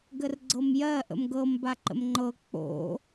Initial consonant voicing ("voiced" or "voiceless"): voiced